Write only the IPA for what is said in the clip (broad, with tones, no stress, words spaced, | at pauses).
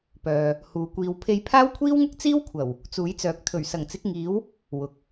pœː˨ | huː˨ kʷiː˨w pʰe˧jpʰaː˥wkʷʰiː˥wŋʊ˥k̚ t͡siː˥wkʷʰɐ˨˩w | t͡suː˨˥jt͡sœː˨˥k̚ t̪ʰɵ˨˩ɥsɐ˨˩ŋt͡sɪ˨˥k̚ŋiː˨˥w | wʊ˨k̚